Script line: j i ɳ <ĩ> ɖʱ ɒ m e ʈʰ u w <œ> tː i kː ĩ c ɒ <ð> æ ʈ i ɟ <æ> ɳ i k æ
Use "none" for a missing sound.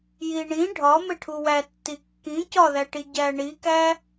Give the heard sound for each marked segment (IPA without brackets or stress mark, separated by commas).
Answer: ĩ, æ, ð, æ